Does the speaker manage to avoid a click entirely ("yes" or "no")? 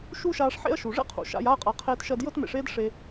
yes